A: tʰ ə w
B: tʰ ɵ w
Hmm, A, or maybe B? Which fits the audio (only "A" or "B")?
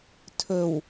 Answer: B